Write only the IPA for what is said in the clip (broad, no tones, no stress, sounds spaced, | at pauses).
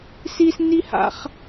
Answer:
s i s n i h a̰ χ